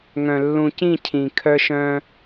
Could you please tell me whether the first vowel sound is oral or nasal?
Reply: nasal